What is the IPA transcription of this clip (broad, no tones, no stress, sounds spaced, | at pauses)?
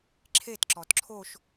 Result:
ǁʰ e t ǁ ɔ t ǁʰ o ʃ